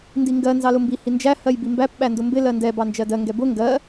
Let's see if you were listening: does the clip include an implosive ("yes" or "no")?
yes